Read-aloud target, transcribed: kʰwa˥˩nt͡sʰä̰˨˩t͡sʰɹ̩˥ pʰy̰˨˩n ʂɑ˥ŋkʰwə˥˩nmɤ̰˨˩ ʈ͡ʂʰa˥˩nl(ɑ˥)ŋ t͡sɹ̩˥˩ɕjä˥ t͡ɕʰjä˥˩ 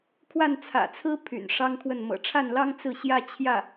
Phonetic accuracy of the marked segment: correct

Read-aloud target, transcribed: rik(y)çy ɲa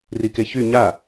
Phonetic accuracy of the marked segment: incorrect: e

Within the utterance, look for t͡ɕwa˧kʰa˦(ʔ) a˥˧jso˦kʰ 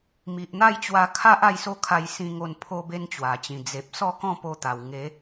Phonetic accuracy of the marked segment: correct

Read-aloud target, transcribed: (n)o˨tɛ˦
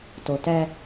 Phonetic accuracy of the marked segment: incorrect: t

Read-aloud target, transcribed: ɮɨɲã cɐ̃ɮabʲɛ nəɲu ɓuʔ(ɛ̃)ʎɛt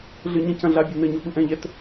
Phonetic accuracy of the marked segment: correct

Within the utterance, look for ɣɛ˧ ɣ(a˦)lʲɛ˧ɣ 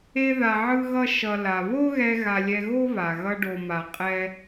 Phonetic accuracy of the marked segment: incorrect: a˧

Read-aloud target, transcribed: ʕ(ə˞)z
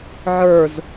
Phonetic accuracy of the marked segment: correct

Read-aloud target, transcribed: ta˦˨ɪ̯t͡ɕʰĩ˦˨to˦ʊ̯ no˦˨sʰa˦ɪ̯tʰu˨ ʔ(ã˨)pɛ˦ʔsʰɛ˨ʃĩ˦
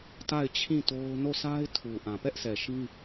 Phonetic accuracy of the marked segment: correct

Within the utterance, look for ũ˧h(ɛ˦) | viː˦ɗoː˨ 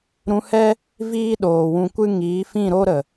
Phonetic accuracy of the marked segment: correct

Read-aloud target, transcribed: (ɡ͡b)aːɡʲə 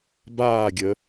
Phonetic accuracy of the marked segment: incorrect: b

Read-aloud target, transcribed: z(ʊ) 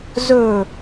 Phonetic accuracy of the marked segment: incorrect: ɵ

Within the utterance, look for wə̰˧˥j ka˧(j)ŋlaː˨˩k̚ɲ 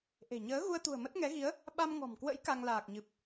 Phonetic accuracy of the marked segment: incorrect: none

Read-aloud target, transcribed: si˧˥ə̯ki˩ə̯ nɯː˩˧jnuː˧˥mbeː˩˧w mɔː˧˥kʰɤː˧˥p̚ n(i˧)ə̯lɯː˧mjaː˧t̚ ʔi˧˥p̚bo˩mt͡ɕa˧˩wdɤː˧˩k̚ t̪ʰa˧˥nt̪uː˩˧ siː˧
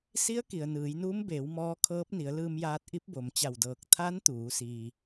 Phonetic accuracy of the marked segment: incorrect: i˩˧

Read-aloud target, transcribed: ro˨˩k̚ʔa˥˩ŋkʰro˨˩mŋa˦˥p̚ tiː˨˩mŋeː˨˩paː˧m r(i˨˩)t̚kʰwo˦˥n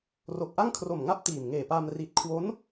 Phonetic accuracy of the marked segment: correct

